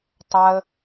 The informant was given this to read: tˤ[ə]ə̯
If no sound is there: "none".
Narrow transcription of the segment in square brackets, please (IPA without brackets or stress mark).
a